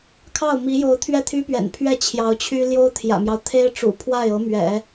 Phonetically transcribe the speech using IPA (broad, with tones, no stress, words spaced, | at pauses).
kʰɑ˥˩ʊ̯mi˧˥jo˧˥ʊ̯ t̪ʰɥɛ˥˩t̪ʰy˥ pɥɛ̰˨˩npʰɥɛ˥˩ t͡ɕʰjɑ˧˥ʊ̯t͡ɕʰy˥ ljo˥ʊ̯t̪ʰjä̰˨˩mjɑ˦ʊ̯ t̪ʰe˥ɪ̯ʈ͡ʂṵ˨˩ pʰwa˥˩ɪ̯ɤ˧˥mɥɛ̰˨˩˦